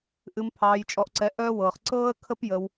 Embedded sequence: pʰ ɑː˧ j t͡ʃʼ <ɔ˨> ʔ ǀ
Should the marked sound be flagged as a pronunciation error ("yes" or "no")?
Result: yes